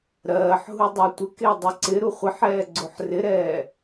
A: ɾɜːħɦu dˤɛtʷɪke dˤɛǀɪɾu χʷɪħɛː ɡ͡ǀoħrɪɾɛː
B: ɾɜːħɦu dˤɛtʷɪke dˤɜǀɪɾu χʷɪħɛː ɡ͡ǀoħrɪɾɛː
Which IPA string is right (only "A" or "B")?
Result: B